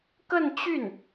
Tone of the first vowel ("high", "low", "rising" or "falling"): falling